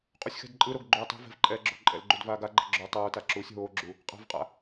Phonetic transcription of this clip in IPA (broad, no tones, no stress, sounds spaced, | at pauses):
qʼ u sʲ x ɛ̤ d ǃʼ ɯ ɾ o ɡ ɡ͡ǃ uː tˤ o̤ v ɛ̤ v ǃʼ ɛː ɡ͡ǁ o̤ ǃʼ ɛ̰ l ɡ͡ǃ u d v aː ɡ a ɡ͡ǃ ɛ̤ ɡ͡ǁ o tˤ oː t a ǁ uː sʲ ɦ oː ɡ͡ǁ u | qʼ a̤ v qʼ a̰